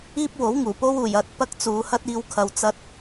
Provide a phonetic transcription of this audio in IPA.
iː˥ p̚ w o˨˥ w ŋ uː˨˩ p o˥ w uː˨˩ j ɐ˧ t̚ p ɐ˥ k̚ t͡s uː˨˧ h ɐ˥ t̚ iː˧ w kʰ ɐ˨ w t͡s ɐ˧ t̚

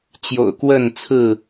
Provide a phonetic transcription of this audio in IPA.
t͡ɕ j o̰˨˩ ʊ̯ k w ə˥˨ n t͡sʰ ɹ̩˥˨

